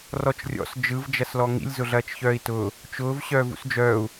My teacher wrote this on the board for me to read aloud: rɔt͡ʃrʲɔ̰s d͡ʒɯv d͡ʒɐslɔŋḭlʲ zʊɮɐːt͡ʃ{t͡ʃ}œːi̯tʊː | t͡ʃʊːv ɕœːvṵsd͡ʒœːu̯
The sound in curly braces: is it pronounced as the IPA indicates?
no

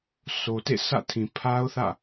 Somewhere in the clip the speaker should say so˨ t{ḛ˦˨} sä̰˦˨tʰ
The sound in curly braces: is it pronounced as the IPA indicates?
yes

